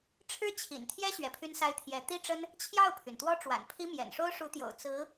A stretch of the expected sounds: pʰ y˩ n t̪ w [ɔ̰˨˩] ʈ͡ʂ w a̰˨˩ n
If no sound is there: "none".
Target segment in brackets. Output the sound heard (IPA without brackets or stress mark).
ɔ˥